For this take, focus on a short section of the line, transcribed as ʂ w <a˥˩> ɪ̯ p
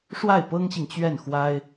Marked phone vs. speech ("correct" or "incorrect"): correct